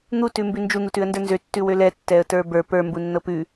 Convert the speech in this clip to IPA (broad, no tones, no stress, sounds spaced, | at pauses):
n̪ u t ʉ m b ʉ n d͡ʒ u n̪ u t ʉ ə̯ n d ə˞ n z ø tː ʉ w ø l ɛ tː ɛ ə̯ t ə˞ b ə˞ p ə˞ m b u nː ɤ p ʉ